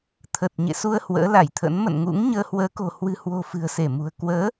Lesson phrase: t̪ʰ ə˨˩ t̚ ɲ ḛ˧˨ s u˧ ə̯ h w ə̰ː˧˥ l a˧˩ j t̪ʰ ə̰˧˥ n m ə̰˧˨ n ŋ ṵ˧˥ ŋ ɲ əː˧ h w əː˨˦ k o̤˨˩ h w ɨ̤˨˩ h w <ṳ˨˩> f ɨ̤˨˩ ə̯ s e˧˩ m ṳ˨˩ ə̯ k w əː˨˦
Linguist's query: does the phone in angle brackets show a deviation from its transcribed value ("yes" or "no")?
yes